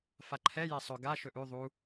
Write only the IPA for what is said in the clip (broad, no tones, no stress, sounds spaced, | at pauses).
f a ǃʰ ɛ j ɛ sˤ ɵ ɡ a ʃ ɵ ʔ ʉ ðˤ u